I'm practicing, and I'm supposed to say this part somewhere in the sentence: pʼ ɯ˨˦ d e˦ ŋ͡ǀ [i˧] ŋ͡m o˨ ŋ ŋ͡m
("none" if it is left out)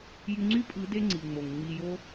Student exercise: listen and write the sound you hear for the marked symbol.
i˨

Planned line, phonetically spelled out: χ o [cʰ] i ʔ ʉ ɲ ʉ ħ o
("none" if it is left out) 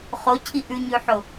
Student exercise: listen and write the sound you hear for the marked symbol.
cʰ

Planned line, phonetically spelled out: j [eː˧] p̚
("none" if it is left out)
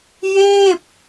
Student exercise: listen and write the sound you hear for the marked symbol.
eː˥˩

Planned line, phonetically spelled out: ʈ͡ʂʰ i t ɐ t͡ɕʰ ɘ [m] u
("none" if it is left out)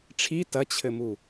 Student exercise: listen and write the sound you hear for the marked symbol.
m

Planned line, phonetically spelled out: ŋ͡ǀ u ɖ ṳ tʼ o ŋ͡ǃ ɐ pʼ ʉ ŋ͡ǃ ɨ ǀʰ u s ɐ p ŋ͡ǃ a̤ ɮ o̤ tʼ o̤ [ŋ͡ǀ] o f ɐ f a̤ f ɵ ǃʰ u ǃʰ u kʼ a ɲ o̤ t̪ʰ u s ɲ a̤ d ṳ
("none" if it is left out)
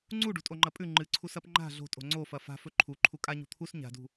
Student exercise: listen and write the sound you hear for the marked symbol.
ŋ͡ǀ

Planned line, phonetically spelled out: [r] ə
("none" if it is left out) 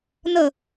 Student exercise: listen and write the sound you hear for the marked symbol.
n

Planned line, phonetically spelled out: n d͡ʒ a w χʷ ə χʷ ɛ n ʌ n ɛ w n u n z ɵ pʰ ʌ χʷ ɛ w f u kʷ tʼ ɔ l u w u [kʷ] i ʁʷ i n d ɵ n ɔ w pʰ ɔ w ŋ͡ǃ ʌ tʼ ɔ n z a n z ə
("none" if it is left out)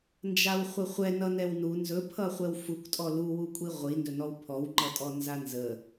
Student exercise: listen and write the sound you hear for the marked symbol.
kʷʼ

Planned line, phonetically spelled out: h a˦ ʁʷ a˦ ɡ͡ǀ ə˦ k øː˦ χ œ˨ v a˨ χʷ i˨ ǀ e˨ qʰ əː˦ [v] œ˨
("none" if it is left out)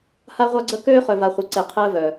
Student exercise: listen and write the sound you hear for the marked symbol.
v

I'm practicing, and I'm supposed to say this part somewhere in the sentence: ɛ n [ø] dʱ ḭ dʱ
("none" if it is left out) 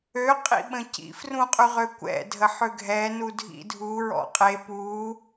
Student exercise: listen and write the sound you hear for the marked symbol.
u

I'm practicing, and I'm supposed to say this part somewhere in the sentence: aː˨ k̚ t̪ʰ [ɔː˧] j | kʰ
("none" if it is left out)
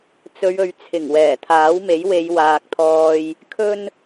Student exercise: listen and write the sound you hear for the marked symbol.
ɔː˧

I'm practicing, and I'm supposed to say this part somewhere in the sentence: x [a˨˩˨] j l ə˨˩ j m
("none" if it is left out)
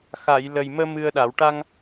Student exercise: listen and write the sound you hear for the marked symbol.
a˨˩˨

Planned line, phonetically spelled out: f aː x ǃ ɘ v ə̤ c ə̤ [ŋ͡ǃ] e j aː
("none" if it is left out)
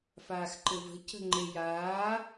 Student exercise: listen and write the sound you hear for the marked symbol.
ŋ͡ǃ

